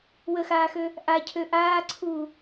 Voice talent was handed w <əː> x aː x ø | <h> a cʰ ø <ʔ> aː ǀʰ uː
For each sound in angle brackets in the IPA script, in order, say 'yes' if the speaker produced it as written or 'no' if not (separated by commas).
no, no, yes